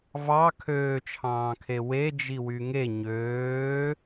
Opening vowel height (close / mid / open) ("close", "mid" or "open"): open